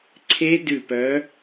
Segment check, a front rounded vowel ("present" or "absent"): present